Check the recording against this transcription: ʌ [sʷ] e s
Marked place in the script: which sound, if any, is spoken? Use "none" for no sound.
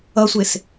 sʷ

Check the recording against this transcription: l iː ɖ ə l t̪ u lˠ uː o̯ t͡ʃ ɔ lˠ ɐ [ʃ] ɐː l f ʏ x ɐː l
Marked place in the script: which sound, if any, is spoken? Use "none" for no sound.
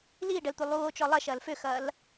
ʃ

